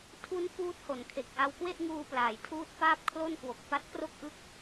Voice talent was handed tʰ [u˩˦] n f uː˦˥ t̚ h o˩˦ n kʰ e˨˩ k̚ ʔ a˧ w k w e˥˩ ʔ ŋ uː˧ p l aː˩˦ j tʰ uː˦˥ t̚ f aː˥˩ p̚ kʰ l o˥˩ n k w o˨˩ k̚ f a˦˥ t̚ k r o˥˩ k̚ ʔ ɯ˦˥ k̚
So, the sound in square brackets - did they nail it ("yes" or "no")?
no